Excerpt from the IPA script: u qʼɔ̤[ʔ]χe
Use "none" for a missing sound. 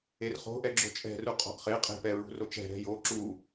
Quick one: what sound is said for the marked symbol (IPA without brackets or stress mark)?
ʔ